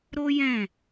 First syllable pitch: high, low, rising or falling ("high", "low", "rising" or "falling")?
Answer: high